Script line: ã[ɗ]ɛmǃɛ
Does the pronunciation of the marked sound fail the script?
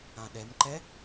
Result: no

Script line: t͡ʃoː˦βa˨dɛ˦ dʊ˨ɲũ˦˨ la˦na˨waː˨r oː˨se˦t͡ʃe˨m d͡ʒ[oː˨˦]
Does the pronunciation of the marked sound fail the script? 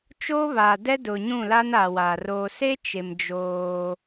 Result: yes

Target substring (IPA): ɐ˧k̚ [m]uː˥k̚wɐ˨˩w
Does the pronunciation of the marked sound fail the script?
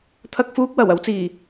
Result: yes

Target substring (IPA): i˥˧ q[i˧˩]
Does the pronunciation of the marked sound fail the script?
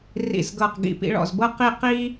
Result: yes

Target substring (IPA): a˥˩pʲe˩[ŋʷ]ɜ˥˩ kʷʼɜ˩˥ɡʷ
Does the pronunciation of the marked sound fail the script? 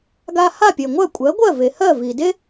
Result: no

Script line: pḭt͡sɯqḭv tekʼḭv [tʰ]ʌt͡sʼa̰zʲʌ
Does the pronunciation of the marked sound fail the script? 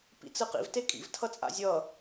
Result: no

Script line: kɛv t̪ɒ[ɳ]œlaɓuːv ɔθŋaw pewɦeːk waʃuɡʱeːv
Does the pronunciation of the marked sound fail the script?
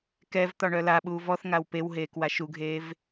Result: no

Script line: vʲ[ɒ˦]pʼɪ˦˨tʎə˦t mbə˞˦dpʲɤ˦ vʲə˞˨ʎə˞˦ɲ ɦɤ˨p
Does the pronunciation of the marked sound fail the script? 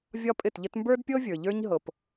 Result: no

